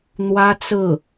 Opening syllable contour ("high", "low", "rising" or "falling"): high